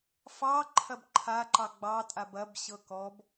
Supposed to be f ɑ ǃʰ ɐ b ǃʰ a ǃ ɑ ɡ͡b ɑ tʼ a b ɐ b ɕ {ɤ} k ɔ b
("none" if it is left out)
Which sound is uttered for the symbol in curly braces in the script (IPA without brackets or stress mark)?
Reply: ɤ